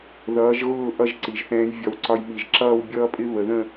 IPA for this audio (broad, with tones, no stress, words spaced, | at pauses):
ðʌː˩˧ʒɣʊː˧˩ʔʌ˧˩ʒ ǀi˩˧ʒθɛ̃ː˧jvʲɒ˧w ǀɒ˧jmi˧˩ʒǁʌː˥˧w bʲʌː˥pʼɪ˥ βə˧ðə̃˥˧